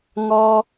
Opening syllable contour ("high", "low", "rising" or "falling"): high